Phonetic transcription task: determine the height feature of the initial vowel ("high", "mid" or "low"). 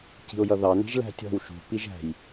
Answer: high